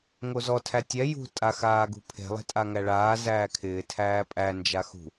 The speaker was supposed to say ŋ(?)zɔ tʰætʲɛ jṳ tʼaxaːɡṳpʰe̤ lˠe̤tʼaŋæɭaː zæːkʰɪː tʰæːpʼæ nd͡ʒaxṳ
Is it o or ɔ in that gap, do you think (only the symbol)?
o